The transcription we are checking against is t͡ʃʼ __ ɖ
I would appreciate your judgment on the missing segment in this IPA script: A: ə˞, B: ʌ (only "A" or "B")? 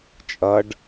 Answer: B